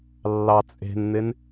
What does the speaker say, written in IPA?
lː ɑ t͡sʼ e̤ n n̪ ɪ n

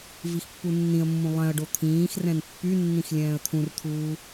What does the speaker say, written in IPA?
v i x pː u nː ĩ ə̯ mː ũ lˠ ɛ̃ ə̯ ɖ o t̪ʰ ĩː x r ɛ̃ n pː y nː ĩ x lʲ ɛ̃ː ə̯ t̪ʰ ũ r t̪ʰ uː

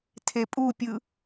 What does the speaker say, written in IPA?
tʰ e pʼ u pʲ ɯ

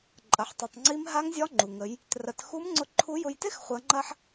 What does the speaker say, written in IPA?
ǃʼ ɐ˩ ħ tˤ i˩ tˤ ŋ͡ǀ i˧˥ m ɦ a˧˥ ŋ zʲ ɒ˧˥ ŋ͡ǃ u˩ ŋ ə˩˧ j | t r ɐ˩˧ t x u˧˥ m ŋ͡ǀ ʊ˧ ǃʰ u˧˥ j ʊ˧ j t ɪ˥ x χʷ ɐ˩˧ ŋ͡ǃ ɐ˧ ħ

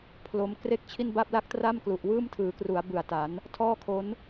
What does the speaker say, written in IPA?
pʰ l o˧ m k r e˥˩ k̚ t͡ɕʰ i˥˩ n b a˥˩ p̚ l a˥˩ k̚ t r a˥˩ m k l u˨˩ ʔ w ɯː˥˩ m tʰ ɯː˩˦ k r u˩˦ a̯ b ɯ˨˩ a̯ t a˩˦ n | tʰ ɔː˥˩ kʰ o˦˥ n

